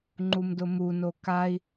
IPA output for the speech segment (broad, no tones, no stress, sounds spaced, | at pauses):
ŋ͡ǃ u m d ʊ m u n o k a i̯